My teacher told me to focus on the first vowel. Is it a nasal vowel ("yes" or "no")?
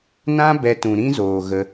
yes